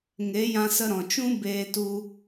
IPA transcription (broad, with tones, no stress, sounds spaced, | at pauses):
ŋ e˨˦ j ã˧ s ə˧ ɾ ɔ̃˨ t͡ʃ ũ˦ b eː˧ t u˧